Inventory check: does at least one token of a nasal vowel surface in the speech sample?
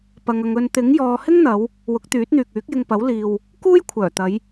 no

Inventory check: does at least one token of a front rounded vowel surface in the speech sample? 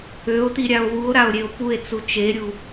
yes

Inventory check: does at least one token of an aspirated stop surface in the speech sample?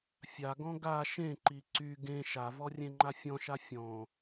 no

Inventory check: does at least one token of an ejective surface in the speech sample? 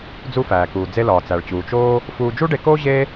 no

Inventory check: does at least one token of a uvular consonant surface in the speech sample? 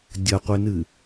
yes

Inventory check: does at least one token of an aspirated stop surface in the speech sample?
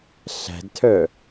yes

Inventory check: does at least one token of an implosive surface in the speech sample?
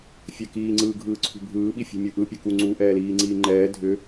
yes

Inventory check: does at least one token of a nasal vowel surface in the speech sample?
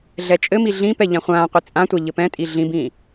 yes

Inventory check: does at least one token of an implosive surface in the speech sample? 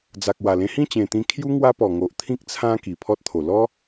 no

